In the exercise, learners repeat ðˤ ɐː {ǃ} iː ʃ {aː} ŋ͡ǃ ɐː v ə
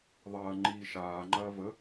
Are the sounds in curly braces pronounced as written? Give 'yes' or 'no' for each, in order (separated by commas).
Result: no, yes